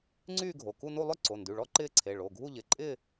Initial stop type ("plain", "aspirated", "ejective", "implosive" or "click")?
click